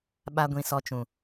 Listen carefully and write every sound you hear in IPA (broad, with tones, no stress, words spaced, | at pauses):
ɓa˦ɡʷĩ˧ sɔ˧t͡ʃũ˨